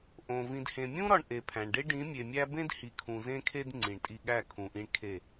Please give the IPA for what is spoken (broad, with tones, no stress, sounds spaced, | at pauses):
ʔ õ˨ v ĩ˨ d h ẽ˨ mʲ ũ˦ ɾ ɒ˧ ɳ ʔ e˨ pʰ æ̃˨ ɳ ɖ e˦ ɖ ĩ˨˦ mʲ e˨ mʲ æ˦ b ẽ˦ d h i˨ kʰ ũ˨ z ẽ˧ kʰ e˧ d ŋ͡ǀ ĩ˨ ɳ tʼ i˧ ɠ æ˦˨ kʰ ũ˨ ʔ ĩ˧ ɳ kʰ e˦˨